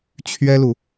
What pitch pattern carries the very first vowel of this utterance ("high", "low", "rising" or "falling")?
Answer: high